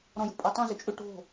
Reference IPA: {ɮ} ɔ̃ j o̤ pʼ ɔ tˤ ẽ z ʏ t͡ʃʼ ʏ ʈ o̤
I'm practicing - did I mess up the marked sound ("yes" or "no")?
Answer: yes